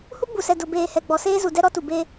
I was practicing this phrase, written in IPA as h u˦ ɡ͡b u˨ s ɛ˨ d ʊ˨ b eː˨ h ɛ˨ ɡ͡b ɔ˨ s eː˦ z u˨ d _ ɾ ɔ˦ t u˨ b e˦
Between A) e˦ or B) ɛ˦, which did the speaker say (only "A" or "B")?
B